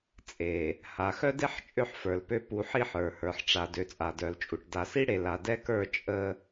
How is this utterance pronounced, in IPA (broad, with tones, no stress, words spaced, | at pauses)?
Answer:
t͡sʼe˨ | ha˨xœ˦de˦ħ t͡ʃʼø˦ħfə˞˨lpø˦ pu˨˦ħi˦˨ħ ə˞˨hə˞˨ħʈ͡ʂa˨ dø˨t͡sʼa˨dœ˨lt͡ʃʼu˨ʈ da˨si˦ɽe˨ la˨dɛ˦kə˞˦˨ t͡ʃʼə˦